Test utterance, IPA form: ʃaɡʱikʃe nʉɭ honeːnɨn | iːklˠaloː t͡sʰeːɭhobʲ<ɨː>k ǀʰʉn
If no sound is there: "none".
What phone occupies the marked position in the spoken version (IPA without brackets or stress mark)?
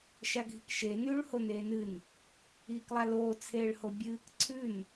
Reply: ɨː